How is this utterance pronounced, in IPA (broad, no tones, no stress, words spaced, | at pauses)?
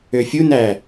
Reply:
øfʲunæ